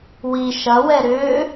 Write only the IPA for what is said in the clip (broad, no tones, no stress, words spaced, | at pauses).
wi ʃɐwɛ ɾʏː